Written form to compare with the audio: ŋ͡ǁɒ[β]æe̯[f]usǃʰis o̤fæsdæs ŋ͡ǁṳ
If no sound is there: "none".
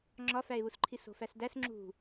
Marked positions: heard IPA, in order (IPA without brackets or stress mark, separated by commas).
f, β